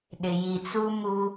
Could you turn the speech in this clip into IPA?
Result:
ɗ ɪ˨ j i˨ t͡s u˦ m u˦

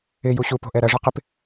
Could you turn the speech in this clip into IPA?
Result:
ɪ j u ɕ u p o̤ ʔ ɛ ɾ ɐ ʐ ɐ q ɪ p

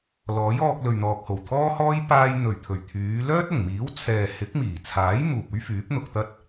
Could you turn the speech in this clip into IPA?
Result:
l ɔː˨˥ j ɔː˧ k̚ l ɵ˨ ɥ n̪ ɔː˨ k̚ h o˨˩ w t̪ʰ ɔː˥ h ɔː˥ j p aː˧ j n̪ ɵ˨˩ ɥ t̪ʰ ɵ˨˩ ɥ t̪ʰ yː˨˧ l œː˥ t̚ ʊ˨˩ ŋ m iː˨˥ w t͡sʰ ɛː˨ h ɪ˨˥ k̚ m iː˨˩ t͡sʰ aː˨˥ j m uː˨ p̚ ɵ˥ ɥ f yː˨˥ p̚ n̪ ʊ˧ k̚ t̪ ɐ˥ t̚

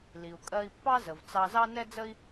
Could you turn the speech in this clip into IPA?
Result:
l i˩ u̯ kʼ ɜ˧ i̯ pː ɑ˥ z ə˩ v t͡s ɑ˧ z ɑ˥ n ɛ˥ d͡z ə˥ i̯

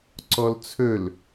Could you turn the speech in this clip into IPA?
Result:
ǀ ɔ l t͡sʰ ɵ l

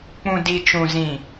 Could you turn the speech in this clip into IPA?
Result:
k͡p ũ˨ d i˨ t͡ʃ ũ˨ z ĩ˨

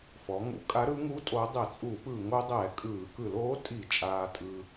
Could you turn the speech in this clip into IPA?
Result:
f ɔ˩˧ ŋ ṵ˨˥ kʼ a˨˥ ɾ ɯ˩˧ ŋ u˨˥ tʼ o˩˧ dˤ ɛ˧˩˧ t͡sʼ u˧˩˧ p ɯː˧˩˧ ŋ o˩˧ dˤ ɛː˧˩˧ kʼ ɯː˧˩˧ k ɯ˧˩˧ l oː˨˥ tʼ i˧˩˧ t͡ʃʼ aː˧ tʼ ɯ˧

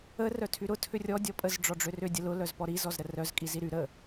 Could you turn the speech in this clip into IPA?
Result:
ə r œ tʰ y ɾ ʊ tʰ ʏ rʲ ɔ dʲ ɔ pʼ ə z ɖ͡ʐ ɔ ɖ͡ʐ ʏ r ʏ dʲ ə l ʊ l œ z p ɔ ɾ i z ɔ z ɾ ə r œ z kʼ i z i ɾ y ɾ ə

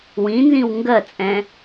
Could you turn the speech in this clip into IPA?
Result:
w ĩ n z ĩ w ŋ ɡ ɜ t͡sʼ ɛ̃

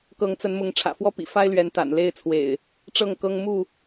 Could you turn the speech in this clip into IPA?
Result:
k ɤ˨˦ ŋ t͡s ə˨˦ n m ʊ˨˦ ŋ ʈ͡ʂʰ ä̰˨˩ f w ɔ˦ p ḭ˨˩ f a˦ ɪ̯ l ɥ ɛ˨˦ n t̪ a̰˨˩ n l e˥˨ ɪ̯ t͡sʰ w ḛ˨˩ ɪ̯ | ʈ͡ʂ ɤ˥˨ ŋ k ɤ˦ ŋ m u˥˨

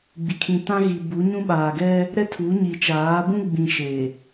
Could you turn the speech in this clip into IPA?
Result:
ɡ͡b i˨ kʰ ĩ˨ t ã˦ ɣ i˨ b u˨˦ ɲ ũ˦ ɓ aː˨ ɡ ɛ˦ | ɾ ɛ˦ tʰ u˨˦ ɲ i˨ t͡ʃ aː˨˦ b ũ˦ ɡ͡b ĩ˨ ʃ e˨

